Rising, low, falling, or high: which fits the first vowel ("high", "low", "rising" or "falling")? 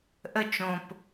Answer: falling